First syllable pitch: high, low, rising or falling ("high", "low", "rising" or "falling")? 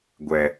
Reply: low